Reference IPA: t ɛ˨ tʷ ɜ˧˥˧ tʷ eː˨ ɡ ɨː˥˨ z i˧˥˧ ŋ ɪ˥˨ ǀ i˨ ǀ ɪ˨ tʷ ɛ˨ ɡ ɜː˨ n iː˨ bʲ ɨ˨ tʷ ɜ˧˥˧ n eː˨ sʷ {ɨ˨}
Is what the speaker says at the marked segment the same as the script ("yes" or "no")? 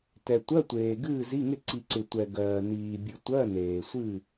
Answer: no